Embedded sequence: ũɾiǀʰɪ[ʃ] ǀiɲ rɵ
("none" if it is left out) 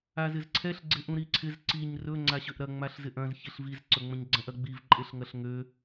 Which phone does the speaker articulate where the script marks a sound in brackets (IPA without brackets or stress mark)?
z